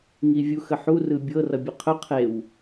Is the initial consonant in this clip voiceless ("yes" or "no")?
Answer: no